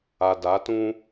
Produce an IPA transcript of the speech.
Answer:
a˨da˨˦tũ˦

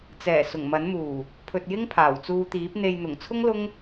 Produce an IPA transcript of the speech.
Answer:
t͡sɛː˨˩ sʊ˨˩ŋmɐ˨˥n muː˨˩ | pʰɵ˨t̚jɪ˥ŋ pʰaː˨˩wt͡suː˧t̪iː˨˥p̚ n̪e˨jn̪ʊ˨˩ŋt͡sʰʊ˥ŋ lʊ˥ŋ

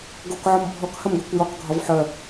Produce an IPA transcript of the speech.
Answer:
ɡokʕɔm bʱɔkhɐmɡœkʷ jɒkɡʱɒv ħœ

